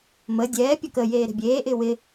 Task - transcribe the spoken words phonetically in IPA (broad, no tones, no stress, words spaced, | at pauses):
məː dʲɛː pʲɔkəjeː ɾe̤bʲeːʔɪː wɪ